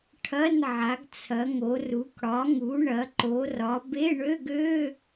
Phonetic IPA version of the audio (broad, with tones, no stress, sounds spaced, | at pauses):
ʈʰ ɐ˧˥˧ n ʕ a˩˧ ɡ t͡sʰ ɐ˩˧ ŋ o˩˧ r u˩˧ k ɽ ɒ˩˧ ŋ u˩˧ ɳ ɐ˩˧ ǃ o˩˧ r ɒ˩˧ b e˧˥˧ ɳ ø˧˥˧ ɡ ø˧˥˧